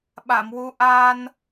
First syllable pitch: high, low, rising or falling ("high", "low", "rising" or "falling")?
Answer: low